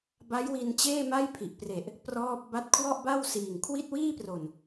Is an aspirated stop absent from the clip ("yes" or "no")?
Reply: no